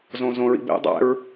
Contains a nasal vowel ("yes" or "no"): yes